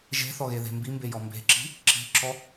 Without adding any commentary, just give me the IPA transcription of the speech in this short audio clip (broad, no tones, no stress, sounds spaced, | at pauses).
ʒ e̤ θ ɔ ɣ e ð e̤ m b i m b e j ɔ m b e̤ ǁ i̤ | ǁ i̤ ǁ ɔ